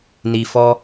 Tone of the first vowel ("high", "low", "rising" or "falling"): low